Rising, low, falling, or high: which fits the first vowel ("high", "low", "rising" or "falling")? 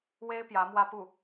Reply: high